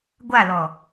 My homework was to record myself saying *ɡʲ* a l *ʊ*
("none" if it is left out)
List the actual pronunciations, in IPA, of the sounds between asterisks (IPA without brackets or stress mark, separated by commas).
ɡʷ, ɔ